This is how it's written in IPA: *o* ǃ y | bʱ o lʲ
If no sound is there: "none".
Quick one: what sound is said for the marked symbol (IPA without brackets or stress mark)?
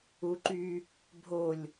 u